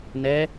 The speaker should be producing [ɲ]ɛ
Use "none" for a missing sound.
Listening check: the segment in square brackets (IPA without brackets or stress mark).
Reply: n